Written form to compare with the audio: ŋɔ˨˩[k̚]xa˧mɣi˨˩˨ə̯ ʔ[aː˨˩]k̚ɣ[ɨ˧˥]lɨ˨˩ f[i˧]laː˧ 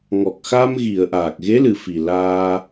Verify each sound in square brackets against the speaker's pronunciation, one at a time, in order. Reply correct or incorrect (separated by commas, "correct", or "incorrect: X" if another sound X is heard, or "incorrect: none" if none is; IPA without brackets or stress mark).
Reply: correct, correct, incorrect: e˧˥, incorrect: i˨˩